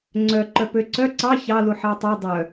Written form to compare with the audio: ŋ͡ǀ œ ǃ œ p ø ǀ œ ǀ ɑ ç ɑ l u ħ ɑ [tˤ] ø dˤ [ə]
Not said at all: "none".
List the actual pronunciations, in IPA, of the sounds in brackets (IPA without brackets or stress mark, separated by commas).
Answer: tˤ, œ